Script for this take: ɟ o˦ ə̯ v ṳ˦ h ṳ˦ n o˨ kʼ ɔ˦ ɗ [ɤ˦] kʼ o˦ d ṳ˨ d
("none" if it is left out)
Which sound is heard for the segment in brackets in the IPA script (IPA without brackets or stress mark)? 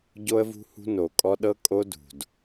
ɤ˦